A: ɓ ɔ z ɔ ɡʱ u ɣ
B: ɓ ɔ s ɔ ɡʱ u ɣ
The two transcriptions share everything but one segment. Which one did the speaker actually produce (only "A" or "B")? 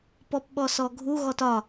B